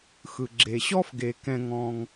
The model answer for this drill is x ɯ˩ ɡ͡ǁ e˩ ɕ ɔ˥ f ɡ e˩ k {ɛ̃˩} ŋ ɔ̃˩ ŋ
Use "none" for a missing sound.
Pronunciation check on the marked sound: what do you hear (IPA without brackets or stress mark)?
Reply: ɛ̃˩